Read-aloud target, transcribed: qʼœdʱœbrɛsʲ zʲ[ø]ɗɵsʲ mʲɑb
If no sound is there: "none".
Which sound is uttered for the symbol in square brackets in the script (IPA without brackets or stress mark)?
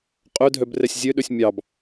ø